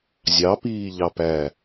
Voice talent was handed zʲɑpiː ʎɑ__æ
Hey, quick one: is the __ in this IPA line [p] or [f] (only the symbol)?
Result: p